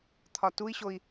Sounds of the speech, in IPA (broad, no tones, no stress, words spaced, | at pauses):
t̪ʰɒtui̯ɕoi̯